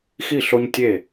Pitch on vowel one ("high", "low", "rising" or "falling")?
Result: falling